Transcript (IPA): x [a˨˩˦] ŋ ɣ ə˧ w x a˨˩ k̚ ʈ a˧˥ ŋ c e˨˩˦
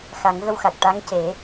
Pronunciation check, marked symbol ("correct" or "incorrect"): correct